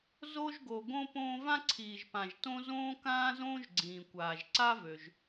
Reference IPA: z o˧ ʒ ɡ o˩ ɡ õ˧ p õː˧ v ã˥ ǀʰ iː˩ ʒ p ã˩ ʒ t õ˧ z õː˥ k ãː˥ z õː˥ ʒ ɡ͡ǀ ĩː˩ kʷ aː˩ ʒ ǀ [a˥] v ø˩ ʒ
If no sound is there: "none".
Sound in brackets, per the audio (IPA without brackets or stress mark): a˥